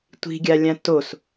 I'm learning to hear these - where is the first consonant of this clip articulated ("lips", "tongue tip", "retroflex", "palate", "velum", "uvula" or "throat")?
tongue tip